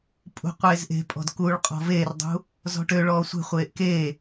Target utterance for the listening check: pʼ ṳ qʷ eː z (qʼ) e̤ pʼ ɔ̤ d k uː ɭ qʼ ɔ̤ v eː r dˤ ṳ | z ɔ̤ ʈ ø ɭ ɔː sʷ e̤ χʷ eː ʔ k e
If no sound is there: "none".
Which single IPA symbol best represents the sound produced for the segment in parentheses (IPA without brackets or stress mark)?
ʔ